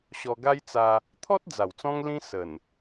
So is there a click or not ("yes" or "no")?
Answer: no